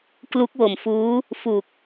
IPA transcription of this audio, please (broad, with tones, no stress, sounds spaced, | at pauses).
k l u˦˥ k̚ w o˨˩ m f uː˦˥ | f u˨˩ k̚